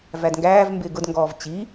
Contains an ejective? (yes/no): no